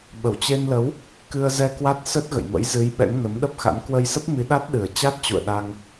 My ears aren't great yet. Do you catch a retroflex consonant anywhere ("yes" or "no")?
no